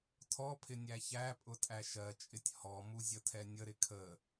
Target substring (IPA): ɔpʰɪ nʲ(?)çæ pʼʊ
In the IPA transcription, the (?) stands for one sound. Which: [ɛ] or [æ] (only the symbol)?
æ